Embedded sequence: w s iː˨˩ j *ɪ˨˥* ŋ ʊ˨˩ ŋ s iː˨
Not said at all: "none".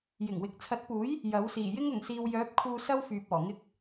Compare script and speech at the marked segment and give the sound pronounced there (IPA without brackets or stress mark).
ɪ˥